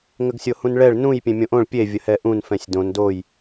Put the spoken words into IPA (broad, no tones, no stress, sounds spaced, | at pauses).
ŋ ə ɡ sʲ o h ũ n ɭ ɛ ɭ n ũ j pʲ ẽ mʲ õ ʔ õ ɭ pʲ e vʲ ə h ɛ ʔ ũ n f ɛ̃ sʲ d õ n d o j